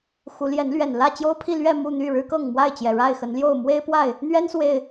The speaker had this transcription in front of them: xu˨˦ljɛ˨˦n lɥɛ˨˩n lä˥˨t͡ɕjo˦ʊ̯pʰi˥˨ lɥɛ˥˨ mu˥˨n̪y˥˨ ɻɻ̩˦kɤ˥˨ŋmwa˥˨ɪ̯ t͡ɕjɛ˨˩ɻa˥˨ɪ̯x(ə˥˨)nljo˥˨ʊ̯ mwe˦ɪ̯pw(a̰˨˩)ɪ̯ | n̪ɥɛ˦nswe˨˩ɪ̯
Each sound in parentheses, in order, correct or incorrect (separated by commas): incorrect, incorrect